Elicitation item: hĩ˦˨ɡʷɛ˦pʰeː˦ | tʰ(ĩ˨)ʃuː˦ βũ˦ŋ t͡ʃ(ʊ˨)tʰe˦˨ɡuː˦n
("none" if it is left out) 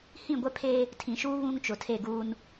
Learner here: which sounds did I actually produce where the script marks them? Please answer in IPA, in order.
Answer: ĩ˨, ʊ˨

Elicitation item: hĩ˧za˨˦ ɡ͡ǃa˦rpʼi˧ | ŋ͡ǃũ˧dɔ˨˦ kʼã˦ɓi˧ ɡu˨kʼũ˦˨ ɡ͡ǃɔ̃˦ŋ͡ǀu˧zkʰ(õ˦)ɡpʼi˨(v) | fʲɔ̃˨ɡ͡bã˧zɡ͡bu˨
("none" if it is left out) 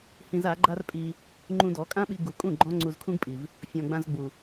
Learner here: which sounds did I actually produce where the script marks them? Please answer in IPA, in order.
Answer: ũ˦, v

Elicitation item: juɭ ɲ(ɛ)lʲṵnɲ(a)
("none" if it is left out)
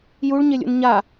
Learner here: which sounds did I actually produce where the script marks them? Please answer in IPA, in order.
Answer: e, a

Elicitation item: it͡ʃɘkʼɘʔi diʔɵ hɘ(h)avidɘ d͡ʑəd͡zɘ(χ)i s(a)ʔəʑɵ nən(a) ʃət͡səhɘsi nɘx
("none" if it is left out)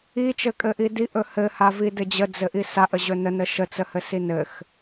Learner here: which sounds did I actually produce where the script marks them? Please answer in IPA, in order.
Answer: h, ʔ, a, ə

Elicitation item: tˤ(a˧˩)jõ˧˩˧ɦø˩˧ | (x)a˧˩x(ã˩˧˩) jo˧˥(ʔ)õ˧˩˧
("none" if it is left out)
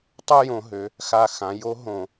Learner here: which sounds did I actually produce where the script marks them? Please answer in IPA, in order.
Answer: a˥˧, x, ã˩˧, ɦ

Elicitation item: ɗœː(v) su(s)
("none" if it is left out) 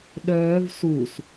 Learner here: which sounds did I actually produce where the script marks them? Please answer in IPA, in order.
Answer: v, s

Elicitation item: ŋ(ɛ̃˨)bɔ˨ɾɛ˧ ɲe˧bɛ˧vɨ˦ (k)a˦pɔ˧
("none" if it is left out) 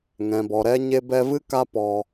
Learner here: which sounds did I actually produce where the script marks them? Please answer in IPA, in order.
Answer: ɛ̃˨, k

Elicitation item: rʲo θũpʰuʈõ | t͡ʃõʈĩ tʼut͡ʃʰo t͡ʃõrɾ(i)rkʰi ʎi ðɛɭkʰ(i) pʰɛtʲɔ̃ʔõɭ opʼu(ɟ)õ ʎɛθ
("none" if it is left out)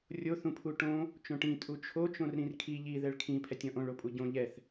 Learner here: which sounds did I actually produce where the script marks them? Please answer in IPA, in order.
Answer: ĩ, ĩ, ɟ

